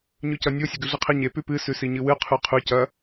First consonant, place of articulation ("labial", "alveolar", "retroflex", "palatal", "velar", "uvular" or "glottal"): palatal